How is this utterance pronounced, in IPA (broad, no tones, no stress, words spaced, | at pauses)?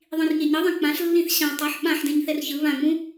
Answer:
ðˤĩrɲeɲɯðˤɛ̃ k͡pãɬlːĩθ ɕã tˤɛħ ɓãħdẽɲ θɛrçɯ βãŋ͡mũ